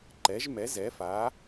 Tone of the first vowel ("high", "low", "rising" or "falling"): rising